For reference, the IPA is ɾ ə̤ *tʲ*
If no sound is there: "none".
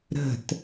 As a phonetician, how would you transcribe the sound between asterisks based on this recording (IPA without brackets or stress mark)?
t